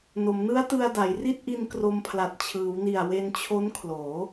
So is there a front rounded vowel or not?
no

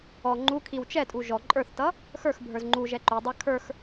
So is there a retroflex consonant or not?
no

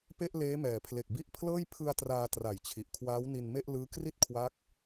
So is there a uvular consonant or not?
no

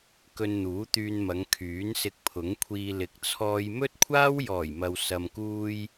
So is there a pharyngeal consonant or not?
no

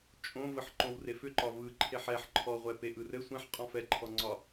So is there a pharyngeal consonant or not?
yes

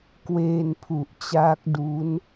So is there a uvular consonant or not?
no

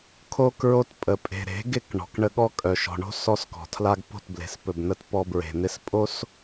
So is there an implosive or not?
yes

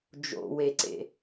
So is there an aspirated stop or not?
no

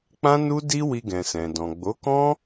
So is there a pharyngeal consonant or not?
no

